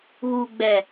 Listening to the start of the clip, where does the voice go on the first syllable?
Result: low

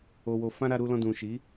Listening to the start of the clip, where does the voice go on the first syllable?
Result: low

